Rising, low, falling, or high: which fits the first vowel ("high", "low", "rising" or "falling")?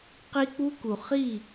high